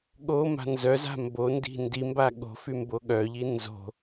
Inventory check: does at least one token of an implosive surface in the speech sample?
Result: yes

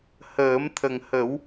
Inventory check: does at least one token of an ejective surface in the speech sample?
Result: no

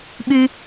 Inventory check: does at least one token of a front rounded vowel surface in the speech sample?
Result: yes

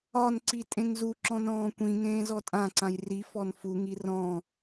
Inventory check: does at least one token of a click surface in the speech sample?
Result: yes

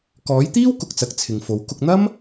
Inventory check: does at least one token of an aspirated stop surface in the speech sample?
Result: yes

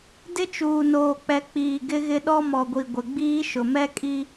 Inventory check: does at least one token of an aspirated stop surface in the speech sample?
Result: no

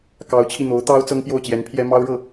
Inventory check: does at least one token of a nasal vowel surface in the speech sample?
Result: no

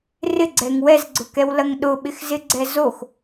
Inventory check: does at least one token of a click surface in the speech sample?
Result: yes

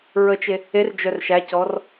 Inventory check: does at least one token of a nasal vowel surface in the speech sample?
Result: no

